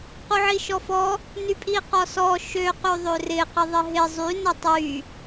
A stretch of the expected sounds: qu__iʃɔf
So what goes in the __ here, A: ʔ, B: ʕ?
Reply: B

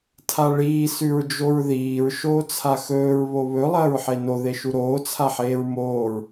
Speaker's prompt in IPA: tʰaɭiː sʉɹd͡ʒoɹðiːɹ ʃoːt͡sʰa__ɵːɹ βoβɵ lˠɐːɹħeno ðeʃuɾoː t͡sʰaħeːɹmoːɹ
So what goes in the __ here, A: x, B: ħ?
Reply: A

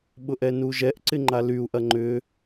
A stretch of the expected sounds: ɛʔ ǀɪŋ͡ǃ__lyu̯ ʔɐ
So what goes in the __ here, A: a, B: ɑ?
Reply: A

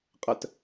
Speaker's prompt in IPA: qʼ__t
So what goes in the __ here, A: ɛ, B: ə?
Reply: B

